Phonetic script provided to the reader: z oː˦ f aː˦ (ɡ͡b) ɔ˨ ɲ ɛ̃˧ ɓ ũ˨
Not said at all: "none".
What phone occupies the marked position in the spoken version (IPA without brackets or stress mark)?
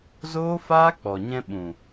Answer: k͡p